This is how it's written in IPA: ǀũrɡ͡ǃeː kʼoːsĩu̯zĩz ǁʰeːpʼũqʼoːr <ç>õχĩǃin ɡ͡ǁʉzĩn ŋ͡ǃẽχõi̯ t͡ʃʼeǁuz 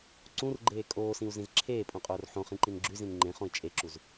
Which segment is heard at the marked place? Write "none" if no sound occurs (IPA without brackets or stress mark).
ħ